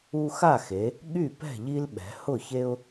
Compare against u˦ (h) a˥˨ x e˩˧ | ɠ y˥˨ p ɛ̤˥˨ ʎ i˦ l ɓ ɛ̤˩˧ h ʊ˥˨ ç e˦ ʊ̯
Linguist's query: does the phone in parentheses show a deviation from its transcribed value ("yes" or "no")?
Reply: yes